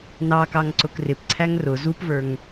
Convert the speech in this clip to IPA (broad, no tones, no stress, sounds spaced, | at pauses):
n ɑ k ɑ ŋ ǀ ʊ k r ɪ p ǀʰ æ ŋ r ʊ z u p v ə˞ ŋ